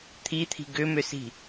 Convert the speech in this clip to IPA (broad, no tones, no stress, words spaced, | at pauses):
t̪ʰit̪ʰi̤ ɡʏmʏsi̤